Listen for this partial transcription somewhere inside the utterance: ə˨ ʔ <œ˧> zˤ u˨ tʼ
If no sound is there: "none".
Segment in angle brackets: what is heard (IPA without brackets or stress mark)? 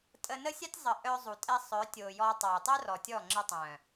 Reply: œ˧